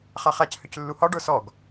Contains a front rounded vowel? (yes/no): yes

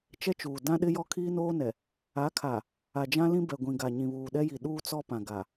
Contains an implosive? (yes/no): yes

